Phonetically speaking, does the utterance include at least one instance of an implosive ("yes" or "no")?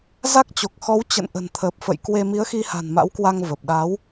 yes